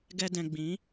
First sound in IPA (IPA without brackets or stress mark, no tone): ɡ